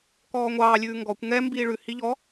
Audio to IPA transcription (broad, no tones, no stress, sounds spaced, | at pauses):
k ɔː ŋʷ ɑː lʲ ʉː ŋ ɡ ɔ kʷ ŋ ɛ m b iː ɭ ʉ h i ʎ ɔ